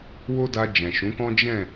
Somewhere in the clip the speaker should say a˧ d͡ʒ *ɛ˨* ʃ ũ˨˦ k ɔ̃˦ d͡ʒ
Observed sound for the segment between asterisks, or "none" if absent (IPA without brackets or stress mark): ɛ̃˨